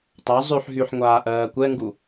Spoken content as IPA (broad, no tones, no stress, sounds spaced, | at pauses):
tˤ a zˤ y ħ ɦ y ħ ŋʷ aː ʔ ɜː kʷ ɛ ŋ ɡ u